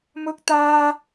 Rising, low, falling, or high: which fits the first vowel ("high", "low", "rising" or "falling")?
high